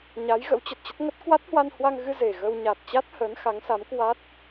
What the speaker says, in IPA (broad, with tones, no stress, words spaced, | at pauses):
ɲa˨˦jɣə̰˧˥wt͡ɕə˨˩t̚t͡ɕə˦˥t̚ ŋə˦˥t̚ kwa˦˥t̚hwa˧nhwa˧ŋɣɨ˧ ze˨˩ɣə˧w ɲa˨˩t̚t͡ɕa˦˥t̚ həː˨˦nxa˨˦ŋsa˨˦mkwa˦˥t̚